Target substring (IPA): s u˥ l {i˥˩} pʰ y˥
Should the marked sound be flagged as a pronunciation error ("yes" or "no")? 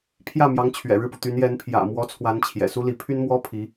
yes